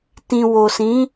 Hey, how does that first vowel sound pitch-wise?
low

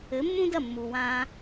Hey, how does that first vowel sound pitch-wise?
rising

